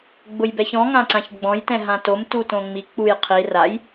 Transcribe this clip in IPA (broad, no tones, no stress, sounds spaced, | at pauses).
ɡ͡b ʊ j b ɛ ç ɔ̃ ŋ ã ǀ ã ç ɡ͡b ɔ̃ j t ɛ̃ ɦ ã t o m t u t õ ŋ͡m i k͡p u j qʰ i r a j